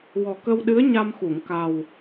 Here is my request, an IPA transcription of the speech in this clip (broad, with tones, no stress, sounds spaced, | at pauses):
w ɔ˨˩ k ə˧ w ɗ ɨ˧˥ ə̯ ɲ a˧ m x u˨˩˨ ŋ k a˨˩ w